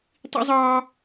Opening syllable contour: high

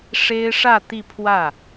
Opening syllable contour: high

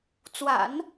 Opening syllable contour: low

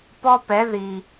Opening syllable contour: high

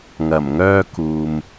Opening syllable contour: low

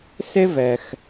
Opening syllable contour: high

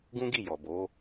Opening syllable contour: high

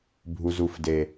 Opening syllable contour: low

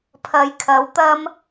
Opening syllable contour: low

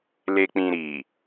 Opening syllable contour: low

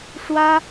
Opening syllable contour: high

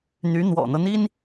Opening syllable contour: rising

